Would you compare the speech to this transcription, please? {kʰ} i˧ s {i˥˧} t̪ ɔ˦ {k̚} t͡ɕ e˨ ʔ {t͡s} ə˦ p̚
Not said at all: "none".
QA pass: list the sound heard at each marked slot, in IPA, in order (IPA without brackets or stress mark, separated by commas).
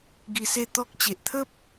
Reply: ɡ, e˥˧, k̚, t̪ʰ